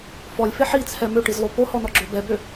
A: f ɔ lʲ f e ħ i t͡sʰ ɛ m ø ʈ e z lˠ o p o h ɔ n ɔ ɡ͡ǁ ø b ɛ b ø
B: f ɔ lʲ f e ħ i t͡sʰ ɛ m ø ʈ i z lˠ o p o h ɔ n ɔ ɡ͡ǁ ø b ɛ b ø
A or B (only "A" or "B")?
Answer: B